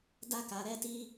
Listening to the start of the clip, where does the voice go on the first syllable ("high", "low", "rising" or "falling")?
high